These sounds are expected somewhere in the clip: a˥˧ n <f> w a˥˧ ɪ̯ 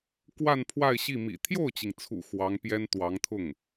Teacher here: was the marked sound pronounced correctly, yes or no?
no